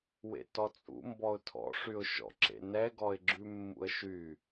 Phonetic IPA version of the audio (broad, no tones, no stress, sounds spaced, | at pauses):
w ḛ t ɔ t͡sʼ ṵ m b ɔ ʊ̯ tʰ ɔ̰ ʂ y ʊ̯ ʃ ɔ̰ ǁ ḛ n ɛ ɡ ɔ ɪ̯ ɡ͡ǁ ʉ mː ṵ ə̯ ʃ y